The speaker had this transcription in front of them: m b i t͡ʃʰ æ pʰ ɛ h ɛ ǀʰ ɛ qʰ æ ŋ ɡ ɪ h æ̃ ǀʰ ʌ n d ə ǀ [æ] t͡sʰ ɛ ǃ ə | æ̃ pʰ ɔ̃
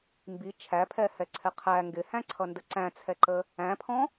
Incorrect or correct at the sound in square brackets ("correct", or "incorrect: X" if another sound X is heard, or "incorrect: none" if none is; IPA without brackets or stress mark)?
incorrect: æ̃